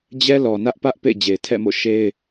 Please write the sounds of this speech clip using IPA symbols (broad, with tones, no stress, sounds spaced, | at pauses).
d͡ʑ ɛ˦ l ɔ˨ n ä˦ ʔ p ä˦ ʔ p ḛ˦˨ ɪ̯ d͡ʑ e˨ ɪ̯ tʰ ɛ̰˦˨ m o̰˦˨ ʃ e˦ ɪ̯